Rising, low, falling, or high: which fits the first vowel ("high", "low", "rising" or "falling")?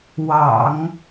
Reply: low